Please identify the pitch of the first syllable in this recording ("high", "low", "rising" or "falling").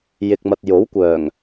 low